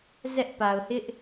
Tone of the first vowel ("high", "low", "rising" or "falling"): high